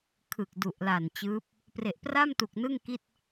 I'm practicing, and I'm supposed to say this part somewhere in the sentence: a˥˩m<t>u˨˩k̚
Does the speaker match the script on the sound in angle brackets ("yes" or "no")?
yes